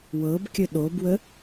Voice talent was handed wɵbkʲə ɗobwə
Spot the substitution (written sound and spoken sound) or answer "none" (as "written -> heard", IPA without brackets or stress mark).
ɵ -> ɤ